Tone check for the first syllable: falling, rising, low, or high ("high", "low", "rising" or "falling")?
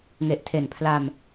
low